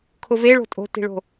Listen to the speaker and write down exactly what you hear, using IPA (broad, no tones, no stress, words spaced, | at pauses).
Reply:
kʰʊve ɭo̤tʼo̤ti̤ɭo̤